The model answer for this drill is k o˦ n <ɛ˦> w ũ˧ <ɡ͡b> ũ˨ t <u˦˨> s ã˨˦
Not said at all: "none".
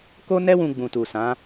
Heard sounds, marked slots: ɛ˦, ɡ͡b, u˨

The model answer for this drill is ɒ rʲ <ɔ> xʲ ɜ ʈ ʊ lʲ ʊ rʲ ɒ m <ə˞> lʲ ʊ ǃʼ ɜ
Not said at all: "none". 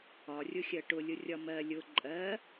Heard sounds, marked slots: ʊ, ɜ

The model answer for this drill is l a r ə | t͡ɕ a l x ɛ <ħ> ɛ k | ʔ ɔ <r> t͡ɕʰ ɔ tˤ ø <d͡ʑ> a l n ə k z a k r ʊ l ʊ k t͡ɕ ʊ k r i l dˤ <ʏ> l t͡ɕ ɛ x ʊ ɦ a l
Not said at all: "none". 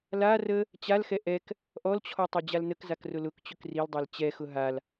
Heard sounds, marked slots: ʔ, l, d͡ʑ, ɛ

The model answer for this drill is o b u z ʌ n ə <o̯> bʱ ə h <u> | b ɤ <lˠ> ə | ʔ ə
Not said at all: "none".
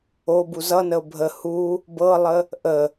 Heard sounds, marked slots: o̯, u, lˠ

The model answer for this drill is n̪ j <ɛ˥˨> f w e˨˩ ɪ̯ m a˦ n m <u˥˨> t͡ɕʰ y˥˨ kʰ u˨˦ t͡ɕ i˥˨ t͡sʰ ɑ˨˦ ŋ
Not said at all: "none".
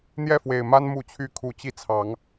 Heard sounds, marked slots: ɛ˥˨, u˥˨

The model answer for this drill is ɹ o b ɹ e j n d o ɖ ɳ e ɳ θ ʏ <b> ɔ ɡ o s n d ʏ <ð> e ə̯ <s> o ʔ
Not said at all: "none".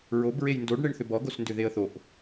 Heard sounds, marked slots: b, ð, θ

